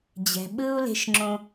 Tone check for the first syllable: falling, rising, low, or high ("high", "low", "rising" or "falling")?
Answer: low